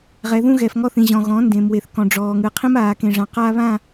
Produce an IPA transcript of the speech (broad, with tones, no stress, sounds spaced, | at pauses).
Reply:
ʁ ɛ˨ ð ũ˦ ɣ ɛ˨ f ŋ ɔ˦ θ ĩ˨ ʑ ɔ̃˨ ɣ ɔ̃ː˨˦ n d ẽ˨ m w e˨ θ k ɔ̃˨ ɖ͡ʐ ɔː˨ ŋ ɯ˨ qʰ ĩ˦ m aː˨ k ẽ˨ ʐ ã˨ q a˦ β ã˦˨